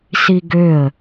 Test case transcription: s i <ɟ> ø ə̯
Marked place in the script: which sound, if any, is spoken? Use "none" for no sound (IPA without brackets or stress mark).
ɡ